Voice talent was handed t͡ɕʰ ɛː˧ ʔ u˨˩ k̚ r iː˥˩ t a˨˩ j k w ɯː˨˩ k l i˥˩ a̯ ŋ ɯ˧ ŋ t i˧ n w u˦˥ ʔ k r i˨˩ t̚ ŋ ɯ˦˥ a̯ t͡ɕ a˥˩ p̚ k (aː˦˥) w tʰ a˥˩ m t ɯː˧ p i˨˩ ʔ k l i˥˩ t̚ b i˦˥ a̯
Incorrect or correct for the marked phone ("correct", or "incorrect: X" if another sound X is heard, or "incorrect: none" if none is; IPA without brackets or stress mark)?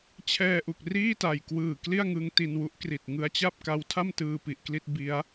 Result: incorrect: a˦˥